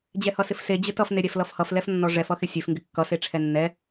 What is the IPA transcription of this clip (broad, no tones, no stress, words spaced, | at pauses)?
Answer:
d͡ʑɛhʌsɪfse d͡ʑɪtʌf neɾʲɛflʌfhʌf lɛfnːɔʐɛf ʌxɪsʲef ŋɡɪkːʌ seʈ͡ʂʰɛnːɛ